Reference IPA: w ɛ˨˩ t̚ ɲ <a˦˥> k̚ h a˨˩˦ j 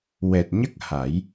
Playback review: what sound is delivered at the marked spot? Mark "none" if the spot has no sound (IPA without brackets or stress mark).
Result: ə˦˥